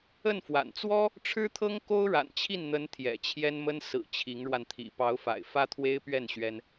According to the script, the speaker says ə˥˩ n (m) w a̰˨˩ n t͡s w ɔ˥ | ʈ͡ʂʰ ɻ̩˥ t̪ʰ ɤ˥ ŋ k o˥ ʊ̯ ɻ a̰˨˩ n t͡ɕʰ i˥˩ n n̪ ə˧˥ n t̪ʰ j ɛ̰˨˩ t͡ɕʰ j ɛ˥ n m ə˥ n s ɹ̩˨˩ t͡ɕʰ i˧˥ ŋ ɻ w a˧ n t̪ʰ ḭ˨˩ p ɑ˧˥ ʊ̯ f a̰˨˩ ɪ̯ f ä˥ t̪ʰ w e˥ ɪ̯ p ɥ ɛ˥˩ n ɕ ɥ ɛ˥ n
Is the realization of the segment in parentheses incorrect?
yes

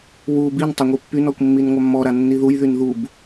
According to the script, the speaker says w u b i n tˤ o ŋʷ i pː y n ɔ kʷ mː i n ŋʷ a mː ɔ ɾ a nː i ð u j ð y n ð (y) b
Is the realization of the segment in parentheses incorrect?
yes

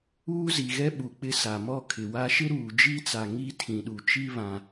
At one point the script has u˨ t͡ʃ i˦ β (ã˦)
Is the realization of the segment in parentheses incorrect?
no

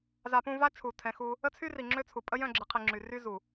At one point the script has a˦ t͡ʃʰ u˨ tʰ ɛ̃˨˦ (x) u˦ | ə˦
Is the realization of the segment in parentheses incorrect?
no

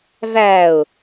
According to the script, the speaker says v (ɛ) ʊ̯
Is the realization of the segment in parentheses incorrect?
yes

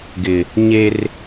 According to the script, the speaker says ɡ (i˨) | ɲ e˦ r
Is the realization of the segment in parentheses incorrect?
yes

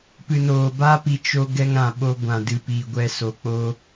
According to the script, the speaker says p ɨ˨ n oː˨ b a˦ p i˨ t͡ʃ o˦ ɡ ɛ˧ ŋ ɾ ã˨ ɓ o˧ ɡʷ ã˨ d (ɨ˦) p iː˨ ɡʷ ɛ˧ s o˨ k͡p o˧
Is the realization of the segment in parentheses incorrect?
yes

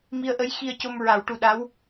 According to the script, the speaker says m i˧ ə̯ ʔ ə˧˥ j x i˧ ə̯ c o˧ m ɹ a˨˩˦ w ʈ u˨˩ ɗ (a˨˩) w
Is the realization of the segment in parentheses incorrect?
yes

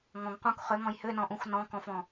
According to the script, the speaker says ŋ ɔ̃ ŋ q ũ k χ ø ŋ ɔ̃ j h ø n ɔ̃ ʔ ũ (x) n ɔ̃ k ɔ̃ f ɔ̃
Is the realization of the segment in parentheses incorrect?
no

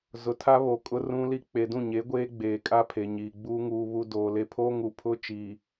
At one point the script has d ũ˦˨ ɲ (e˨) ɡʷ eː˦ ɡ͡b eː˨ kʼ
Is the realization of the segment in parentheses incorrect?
yes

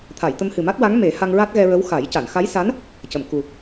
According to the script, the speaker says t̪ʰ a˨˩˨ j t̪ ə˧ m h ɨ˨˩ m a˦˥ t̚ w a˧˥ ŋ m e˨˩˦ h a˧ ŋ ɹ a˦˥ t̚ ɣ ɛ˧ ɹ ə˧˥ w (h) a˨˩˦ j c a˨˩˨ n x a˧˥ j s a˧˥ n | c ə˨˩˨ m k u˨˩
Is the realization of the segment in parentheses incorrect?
yes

